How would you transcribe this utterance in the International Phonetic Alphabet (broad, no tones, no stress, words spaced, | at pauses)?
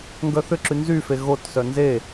ŋɡœθʏǁy nzyfe ɣotsœ nze